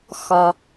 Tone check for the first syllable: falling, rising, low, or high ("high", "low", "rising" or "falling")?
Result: low